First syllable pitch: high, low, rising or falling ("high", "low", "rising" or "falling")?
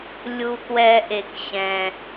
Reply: low